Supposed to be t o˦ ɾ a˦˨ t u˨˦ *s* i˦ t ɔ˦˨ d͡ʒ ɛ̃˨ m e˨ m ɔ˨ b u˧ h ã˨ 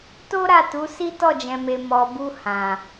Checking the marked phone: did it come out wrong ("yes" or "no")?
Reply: no